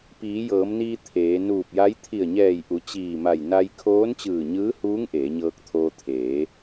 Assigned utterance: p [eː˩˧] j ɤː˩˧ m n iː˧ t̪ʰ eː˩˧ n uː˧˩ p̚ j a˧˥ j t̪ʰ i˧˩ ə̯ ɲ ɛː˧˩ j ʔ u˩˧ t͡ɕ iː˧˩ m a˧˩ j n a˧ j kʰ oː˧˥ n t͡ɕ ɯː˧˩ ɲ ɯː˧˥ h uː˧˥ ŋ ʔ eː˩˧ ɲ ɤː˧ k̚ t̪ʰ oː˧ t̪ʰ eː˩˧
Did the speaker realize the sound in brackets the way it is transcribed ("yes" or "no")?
no